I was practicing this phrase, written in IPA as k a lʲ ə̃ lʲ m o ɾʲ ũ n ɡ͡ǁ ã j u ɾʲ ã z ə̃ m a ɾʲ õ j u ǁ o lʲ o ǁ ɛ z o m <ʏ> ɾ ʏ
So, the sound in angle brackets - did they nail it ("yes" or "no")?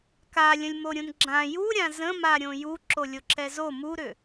no